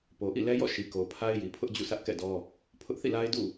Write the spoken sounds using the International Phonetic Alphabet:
po˨ʔḭ˦˨lɛ˦jɔ̰˦˨ ʃi˨ko˨pʰa˦ɪ̯ji˨ pʰʊ˦ʔd͡ʑṵ˦˨sʰä˦ʔ kɛ̰˦˨dɔ˦ | pʰʊ˦ʔθḭ˦˨la˦ɪ̯ dṵ˦˨

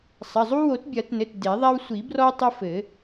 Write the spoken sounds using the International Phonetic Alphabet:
sˤɐ˩˧˩zˤu˦ wo˨˩˦tbʲɐ˨˩˦tnɘ˩˧˩t de˨˩˦ðˤa˦w sʷi˨˩˦brɔ˦ tˤɘ˦fɘ˨˩˦

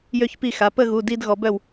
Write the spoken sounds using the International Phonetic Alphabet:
jø˥˧çpi˥˩ xa˩˧pə˥˧ɣu˩˧˩ di˥˧d ɣɔ˩˧bœ˥˩w

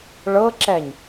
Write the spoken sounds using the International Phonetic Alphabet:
ɭɤǁɛɲ

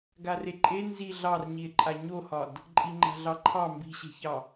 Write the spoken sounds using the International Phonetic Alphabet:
ɡareǃʼe nzi ɮɑrɲie̯ǃʼa ɲohɒd | ǃʼiŋ͡ǃa̤ɮɑǃʰɑ mbi̤ɕe̤çɑ

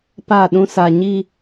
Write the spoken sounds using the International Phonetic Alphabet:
pa˦˨ɗũ˦sa˨ɲi˦˨

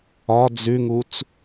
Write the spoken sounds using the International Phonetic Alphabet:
ɒ d͡zʉŋut͡s

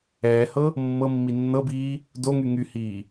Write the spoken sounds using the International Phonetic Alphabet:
ɛːhɤ | mːɤmːi nːɤbiː | doŋy ŋyhiː

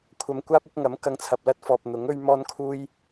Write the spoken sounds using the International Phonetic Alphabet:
kʷʰɐ˨mkʷaː˥p̚ʊ˨˥k̚ ŋɐ˨˥m kɐ˧ŋt͡sʰɐ˨p̚lɐ˥t̚ fɔː˨p̚ n̪ʊ˨˥ŋɵ˥ɥmɔː˥nkʰuː˥j

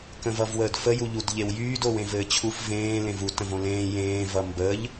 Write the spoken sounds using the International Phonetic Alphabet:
kə̃vʌvwəːdfə juʎudʎewjyːd owẽvɘːt͡ɕʰuf vẽː lẽvu tə̃võlẽː jẽː vʌmbəʎ

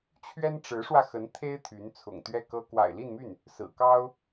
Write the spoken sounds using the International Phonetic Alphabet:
t͡ɕʰɥɛ˥nʈ͡ʂɻ̩˧˥ʂwä˧ xə˧˥nt̪ʰe˥ɪ̯ t̪ʰy˧˥nt͡sʰʊ̰˨˩ŋ t̪ɥɛ˥˩kɤ˥ kwa̰˨˩ɪ̯li˥˧nmy˥˩n | sɹ̩˨˩kɑ˥ʊ̯

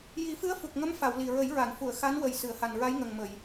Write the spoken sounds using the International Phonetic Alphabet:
ji˨˩˦fɨ˧˥ə̯ fu˨˩k̚ŋə˧˥m fa˨˩˨w li˨˩ɹə˨˩˦j ɹa˨˩˨nfu˨˩˨ə̯ xa˧˥nwə˨˩j sɨ˨˩˨ə̯ha˨˩nɹa˧˥j ŋə˨˩ŋmə˨˩˨j

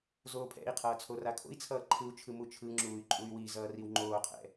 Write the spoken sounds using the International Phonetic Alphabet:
zoːpʰɛ̰i̯qʰʌː t͡sʰorakʰo̰i̯t͡sʰʌː ǃʰɯu̯t͡ʃʰɯ mut͡ʃʰɯŋ͡ǁuːy̯ ǃʼuy̯wizʌː riwŋ͡ǃoːqʰɛ̰

